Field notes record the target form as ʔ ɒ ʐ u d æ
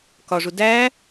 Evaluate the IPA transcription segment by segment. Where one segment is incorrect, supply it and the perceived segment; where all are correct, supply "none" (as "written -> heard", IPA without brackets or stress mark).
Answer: ʔ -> k